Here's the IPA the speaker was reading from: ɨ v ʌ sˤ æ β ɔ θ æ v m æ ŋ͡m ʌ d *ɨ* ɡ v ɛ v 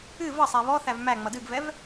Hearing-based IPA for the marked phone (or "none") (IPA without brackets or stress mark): ɨ